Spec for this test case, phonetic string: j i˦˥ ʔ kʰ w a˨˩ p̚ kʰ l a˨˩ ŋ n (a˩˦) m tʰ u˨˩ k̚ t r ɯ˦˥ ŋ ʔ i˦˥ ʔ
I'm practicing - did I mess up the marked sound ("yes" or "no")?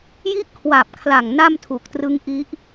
yes